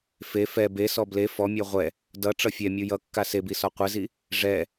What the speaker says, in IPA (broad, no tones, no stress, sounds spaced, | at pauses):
f e f ɛ b e s ɔ b l e f ɔ mʲ ɔ ʁʷ ɛ | d ʌ ʈ͡ʂ ʌ fʲ ɛ mʲ u j ʌ kː a s e b i s ɔ qʷ ɛ z i | ʐ ɛ